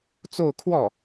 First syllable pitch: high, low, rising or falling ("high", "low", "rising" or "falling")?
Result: falling